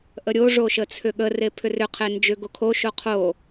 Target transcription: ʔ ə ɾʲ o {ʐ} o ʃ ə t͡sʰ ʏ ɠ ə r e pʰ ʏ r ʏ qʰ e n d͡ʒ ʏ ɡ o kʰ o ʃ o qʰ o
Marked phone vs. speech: correct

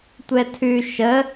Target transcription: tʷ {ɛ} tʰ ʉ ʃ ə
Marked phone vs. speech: correct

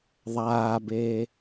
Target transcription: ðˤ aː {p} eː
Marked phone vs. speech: incorrect: b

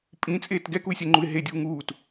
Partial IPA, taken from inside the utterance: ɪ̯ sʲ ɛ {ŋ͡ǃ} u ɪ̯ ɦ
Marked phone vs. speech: correct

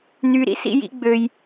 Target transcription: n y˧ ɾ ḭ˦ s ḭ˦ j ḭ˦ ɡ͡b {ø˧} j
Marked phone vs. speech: correct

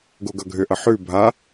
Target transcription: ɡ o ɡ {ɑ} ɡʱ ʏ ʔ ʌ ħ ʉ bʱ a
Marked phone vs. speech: incorrect: ʌ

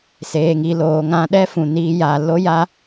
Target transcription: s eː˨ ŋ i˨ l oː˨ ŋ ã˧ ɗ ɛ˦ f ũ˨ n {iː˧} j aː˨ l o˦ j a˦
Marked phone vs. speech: correct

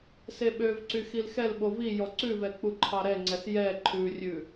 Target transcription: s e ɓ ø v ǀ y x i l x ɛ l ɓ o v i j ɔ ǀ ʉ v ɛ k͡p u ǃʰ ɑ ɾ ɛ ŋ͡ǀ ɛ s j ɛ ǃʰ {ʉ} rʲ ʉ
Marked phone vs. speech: correct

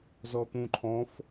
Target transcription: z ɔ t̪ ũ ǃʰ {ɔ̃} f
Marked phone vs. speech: correct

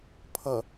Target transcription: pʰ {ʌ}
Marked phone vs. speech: correct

